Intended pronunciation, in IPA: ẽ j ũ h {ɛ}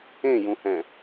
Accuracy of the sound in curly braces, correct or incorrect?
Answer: incorrect: ɛ̃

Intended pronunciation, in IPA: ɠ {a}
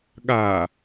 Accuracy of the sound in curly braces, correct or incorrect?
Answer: correct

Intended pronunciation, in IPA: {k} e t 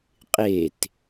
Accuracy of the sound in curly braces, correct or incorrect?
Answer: incorrect: qʼ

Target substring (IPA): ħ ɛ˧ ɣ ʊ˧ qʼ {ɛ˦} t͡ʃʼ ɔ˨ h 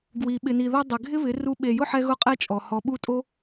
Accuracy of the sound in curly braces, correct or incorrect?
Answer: correct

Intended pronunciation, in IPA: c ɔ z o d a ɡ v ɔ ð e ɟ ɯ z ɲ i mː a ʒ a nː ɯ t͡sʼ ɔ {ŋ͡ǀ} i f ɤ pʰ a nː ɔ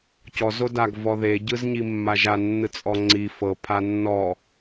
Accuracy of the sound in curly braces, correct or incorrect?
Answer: correct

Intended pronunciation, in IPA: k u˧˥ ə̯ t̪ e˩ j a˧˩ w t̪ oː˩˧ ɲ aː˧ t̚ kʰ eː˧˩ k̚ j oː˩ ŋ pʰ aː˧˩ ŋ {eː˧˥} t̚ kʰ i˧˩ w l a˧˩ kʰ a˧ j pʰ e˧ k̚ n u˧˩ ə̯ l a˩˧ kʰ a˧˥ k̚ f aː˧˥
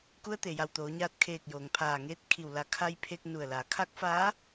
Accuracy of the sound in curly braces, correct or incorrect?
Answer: correct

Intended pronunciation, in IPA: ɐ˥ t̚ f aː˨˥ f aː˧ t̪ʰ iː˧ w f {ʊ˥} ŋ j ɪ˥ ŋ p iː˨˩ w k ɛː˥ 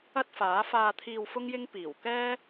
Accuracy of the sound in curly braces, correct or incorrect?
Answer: correct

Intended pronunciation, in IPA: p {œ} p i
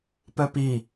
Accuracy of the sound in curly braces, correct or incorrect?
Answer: correct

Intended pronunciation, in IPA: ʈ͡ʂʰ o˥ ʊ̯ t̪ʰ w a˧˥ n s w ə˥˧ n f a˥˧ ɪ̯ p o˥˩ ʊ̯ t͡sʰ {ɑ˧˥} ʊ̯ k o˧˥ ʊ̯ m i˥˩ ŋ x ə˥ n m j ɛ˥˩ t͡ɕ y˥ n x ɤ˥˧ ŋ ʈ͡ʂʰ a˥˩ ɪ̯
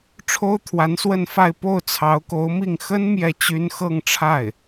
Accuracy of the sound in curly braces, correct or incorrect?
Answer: correct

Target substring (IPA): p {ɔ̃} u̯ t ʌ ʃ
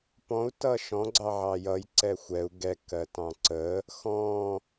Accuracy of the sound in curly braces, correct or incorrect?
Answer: correct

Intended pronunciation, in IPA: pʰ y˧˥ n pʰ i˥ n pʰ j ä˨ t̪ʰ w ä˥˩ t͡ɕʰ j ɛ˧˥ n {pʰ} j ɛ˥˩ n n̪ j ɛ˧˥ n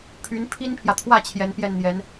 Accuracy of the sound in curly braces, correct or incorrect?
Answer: incorrect: p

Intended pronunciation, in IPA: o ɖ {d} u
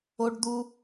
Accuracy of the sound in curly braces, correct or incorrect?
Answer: correct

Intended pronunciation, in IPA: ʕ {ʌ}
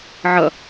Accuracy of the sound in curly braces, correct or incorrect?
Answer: correct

